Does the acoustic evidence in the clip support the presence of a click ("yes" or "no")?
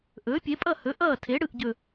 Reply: no